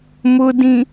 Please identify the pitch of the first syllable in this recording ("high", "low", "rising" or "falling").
low